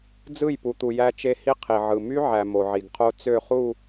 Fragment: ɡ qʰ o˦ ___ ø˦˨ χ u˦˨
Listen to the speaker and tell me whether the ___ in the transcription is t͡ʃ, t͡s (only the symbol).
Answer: t͡s